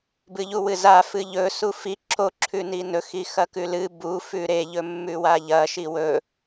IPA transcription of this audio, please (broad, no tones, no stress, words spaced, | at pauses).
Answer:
bɨʎuwɨza fɨʎɵ sufi ǁo ǁʰʉninɵ xixɐkʉlɨ bu fʉɾe ʎɵmːʉwaʎɐ ʃiwɵ